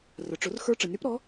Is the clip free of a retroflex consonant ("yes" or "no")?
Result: no